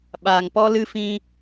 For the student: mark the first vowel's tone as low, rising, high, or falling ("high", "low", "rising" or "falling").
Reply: low